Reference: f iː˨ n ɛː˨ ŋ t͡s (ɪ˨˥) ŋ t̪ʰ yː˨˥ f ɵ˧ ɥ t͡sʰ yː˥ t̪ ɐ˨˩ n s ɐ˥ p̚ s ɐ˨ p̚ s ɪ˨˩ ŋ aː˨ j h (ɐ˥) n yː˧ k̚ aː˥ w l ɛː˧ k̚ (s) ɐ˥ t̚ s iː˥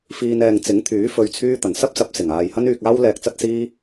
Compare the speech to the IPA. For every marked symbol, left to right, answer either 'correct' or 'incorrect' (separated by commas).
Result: correct, correct, incorrect